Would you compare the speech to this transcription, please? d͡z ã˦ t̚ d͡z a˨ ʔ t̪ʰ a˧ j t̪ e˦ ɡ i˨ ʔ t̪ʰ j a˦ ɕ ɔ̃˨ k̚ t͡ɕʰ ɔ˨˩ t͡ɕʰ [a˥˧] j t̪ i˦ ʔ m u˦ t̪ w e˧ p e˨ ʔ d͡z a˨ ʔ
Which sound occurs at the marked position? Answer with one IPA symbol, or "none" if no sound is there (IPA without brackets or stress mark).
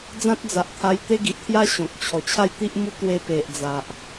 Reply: a˥˧